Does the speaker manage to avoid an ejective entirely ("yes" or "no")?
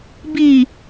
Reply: yes